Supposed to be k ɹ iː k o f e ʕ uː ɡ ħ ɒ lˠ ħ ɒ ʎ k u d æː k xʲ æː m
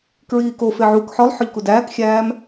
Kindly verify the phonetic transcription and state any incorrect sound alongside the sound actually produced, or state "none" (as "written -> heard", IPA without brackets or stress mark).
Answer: ɡ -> k